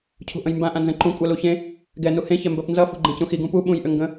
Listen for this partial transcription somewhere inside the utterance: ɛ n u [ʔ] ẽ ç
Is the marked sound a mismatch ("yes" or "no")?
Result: yes